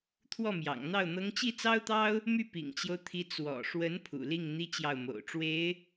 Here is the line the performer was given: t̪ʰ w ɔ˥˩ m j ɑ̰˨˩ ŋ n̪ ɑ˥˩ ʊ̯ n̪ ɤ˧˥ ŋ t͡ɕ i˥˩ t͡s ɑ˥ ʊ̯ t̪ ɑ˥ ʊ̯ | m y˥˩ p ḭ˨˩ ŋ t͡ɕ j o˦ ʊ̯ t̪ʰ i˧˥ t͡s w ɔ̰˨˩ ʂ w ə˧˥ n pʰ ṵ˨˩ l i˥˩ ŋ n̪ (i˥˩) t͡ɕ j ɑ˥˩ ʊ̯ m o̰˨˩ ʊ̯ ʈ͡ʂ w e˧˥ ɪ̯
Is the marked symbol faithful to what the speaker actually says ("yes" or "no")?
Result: no